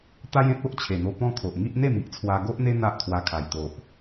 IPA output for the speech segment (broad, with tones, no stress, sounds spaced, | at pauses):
t̪ a˦ j ẽ˦ t̚ o˦ ʔ t͡ɕʰ e˨˩ n̪ o˧ p ɔ̃˦ kʰ o˨ ʔ ŋ i˦ ʔ n̪ e˥˧ m i˦ ʔ t͡sʰ w a˧ ɡ o˦ ʔ n̪ e˦ n̪ a˦ ʔ t̪ʰ w a˧ kʰ a˨˩ j t̪ o˨ ʔ